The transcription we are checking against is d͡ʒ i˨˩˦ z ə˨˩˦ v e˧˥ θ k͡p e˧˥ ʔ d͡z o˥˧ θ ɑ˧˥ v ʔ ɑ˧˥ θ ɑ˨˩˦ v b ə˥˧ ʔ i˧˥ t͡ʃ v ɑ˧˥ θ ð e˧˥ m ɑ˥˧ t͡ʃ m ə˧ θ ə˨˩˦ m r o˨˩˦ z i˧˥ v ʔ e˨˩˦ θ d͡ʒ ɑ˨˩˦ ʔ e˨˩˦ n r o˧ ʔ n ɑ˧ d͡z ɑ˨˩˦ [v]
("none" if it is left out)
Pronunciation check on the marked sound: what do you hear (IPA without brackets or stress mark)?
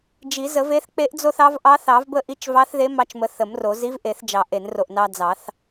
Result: θ